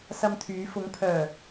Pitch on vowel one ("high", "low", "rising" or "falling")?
high